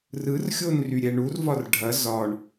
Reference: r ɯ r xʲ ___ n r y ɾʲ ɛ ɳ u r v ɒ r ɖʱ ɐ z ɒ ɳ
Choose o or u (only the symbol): o